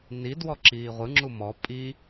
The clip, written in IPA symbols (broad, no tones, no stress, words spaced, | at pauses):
ni dwɔǁiːʁʷɯ ŋ͡ǁumɔ pʼi